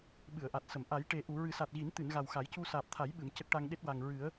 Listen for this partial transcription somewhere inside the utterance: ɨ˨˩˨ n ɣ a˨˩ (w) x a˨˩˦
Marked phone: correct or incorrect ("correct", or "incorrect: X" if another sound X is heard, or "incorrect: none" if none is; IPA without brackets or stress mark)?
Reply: correct